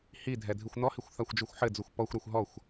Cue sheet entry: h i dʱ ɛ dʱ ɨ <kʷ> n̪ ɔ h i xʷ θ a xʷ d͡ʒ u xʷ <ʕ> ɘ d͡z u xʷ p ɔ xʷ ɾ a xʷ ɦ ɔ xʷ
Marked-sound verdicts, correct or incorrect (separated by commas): incorrect, incorrect